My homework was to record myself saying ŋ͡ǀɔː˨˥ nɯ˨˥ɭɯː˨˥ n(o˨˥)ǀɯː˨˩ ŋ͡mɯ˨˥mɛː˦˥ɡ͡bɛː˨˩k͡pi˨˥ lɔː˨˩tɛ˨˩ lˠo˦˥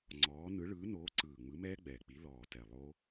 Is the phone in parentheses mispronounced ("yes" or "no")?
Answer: yes